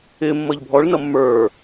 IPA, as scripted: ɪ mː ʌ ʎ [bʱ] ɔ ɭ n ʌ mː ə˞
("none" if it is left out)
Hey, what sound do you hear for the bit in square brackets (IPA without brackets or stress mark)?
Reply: bʱ